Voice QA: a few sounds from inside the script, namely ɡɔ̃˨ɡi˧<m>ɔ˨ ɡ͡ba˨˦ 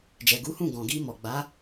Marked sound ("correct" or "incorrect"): correct